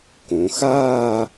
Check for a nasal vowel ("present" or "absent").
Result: present